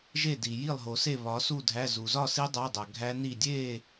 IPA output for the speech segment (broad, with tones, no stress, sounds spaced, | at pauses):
ʒ e˥˨ d i˨ j i˥˨ lˠ ɦ o˨ s e˥˨ β ɒ˨˦ s u˥˨ dʱ æ˧˥˧ z u˨ z ɒ˥˨ s i˦˥ dˤ æ˧˥˧ dˤ æ˨ ɡʱ æ˦˥ n i˥˨ dʲ e˥˨